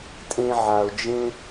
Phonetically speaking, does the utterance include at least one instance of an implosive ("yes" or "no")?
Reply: no